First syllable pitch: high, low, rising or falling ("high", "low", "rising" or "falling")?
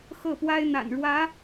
falling